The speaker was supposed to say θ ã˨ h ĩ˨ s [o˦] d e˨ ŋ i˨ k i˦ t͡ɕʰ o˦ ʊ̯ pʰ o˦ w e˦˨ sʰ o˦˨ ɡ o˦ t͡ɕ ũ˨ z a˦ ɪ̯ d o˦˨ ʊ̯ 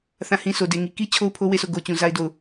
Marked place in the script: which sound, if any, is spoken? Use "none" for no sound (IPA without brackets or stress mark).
o˨